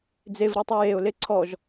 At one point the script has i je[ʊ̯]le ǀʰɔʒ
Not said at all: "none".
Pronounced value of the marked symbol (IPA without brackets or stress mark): ʊ̯